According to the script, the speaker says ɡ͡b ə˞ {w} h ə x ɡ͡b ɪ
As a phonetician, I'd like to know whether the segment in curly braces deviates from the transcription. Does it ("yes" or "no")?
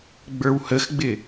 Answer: no